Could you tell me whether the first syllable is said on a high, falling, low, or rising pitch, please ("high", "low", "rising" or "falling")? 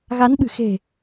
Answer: rising